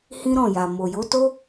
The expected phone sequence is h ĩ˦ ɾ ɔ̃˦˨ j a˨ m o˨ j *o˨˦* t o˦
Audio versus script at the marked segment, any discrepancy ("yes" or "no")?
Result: no